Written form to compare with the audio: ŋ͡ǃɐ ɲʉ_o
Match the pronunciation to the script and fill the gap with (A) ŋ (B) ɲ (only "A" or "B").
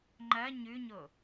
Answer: B